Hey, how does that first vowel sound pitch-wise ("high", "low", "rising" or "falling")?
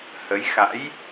rising